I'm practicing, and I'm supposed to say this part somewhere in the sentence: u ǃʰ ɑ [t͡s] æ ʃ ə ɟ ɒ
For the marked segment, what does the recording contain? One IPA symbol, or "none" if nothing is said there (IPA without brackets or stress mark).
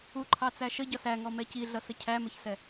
t͡s